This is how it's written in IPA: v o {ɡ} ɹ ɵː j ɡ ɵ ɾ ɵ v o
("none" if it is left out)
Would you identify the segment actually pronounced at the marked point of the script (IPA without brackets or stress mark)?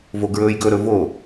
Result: ɡ